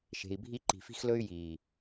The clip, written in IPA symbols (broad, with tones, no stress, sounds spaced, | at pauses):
ʃ e̤˨ i̯ bʱ i˦ ǃ i̤˨ f i̤˦ x l ɵ˦ y̯ j iː˨